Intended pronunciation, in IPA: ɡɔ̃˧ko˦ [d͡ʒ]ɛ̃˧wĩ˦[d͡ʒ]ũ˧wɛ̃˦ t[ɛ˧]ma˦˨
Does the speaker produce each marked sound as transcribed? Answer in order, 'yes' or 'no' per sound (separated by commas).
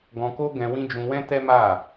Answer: no, yes, no